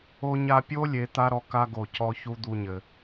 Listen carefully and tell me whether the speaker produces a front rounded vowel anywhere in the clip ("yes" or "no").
no